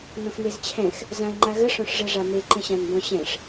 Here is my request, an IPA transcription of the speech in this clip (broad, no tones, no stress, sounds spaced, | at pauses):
n ɔ̃ x n e z t͡ɕʰ ɛ̃ x | z ã ɪ̯ ŋ͡ǃ a ɣ ə ʂ ɔ̃ ʂ ʐ ɛ ʐ a m e ǃ ə̃ ɕ ã n b ɔ̃ ɕ ɛ̃ ʂ